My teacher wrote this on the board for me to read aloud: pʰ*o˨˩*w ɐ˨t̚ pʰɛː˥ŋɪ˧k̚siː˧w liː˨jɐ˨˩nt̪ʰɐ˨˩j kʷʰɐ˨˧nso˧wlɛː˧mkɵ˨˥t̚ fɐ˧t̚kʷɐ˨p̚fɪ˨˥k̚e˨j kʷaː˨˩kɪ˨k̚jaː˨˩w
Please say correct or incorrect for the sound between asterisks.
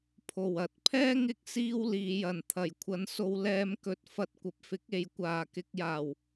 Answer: correct